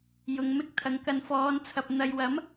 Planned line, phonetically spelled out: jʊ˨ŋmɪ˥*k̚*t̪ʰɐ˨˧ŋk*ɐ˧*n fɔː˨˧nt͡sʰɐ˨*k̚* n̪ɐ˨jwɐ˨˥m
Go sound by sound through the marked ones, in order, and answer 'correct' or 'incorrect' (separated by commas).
correct, correct, incorrect